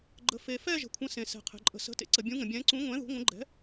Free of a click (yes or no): no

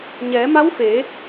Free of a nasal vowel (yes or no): yes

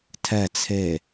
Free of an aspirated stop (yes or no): no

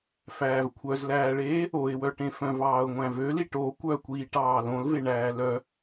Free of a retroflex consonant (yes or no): no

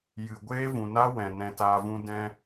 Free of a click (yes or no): yes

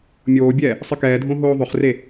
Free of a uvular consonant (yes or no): no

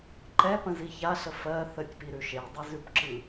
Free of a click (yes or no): no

